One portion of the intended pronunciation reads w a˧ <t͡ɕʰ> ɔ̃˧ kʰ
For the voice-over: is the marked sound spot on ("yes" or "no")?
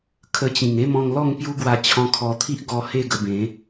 yes